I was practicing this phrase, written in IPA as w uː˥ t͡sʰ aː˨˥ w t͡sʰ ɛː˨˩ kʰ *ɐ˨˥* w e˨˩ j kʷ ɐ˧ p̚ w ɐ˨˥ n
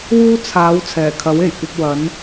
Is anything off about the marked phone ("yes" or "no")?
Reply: no